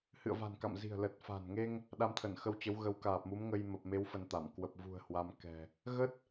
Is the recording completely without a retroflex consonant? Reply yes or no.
yes